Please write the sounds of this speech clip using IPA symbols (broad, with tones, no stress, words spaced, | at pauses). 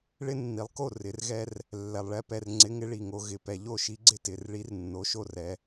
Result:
ɭɪ˦nːi˩˧lˠko˥˩ rɪ˩˧rɣɛ˦r | lːɛ˩lˠɭɛ˨˥pɛ˩˧˩r ŋ͡ǀɪ˨˥ŋɪ˨˥ɭi˩ŋo˩˧ ɣɪ˩˧˩ pɛ˩ʎo˥˩ ʃi˨˥ɡ͡ǀɪ˥˩ tɪ˩˧˩rɭi˨˥r nːo˩˧˩ʃo˥˩rɛ˩˧